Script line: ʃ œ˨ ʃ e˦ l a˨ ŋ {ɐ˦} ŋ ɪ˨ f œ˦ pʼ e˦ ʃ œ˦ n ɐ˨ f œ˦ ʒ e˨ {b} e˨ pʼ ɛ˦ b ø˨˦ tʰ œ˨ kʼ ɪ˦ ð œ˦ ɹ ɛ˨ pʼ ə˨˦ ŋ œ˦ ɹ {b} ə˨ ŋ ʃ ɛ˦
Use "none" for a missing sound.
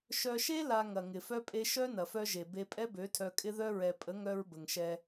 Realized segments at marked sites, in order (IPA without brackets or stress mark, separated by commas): ɐ˨, b, b